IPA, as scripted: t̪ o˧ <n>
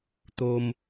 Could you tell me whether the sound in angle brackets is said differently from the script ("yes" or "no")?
yes